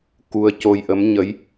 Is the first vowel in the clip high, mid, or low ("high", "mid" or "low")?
high